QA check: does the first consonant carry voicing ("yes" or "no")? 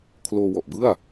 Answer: no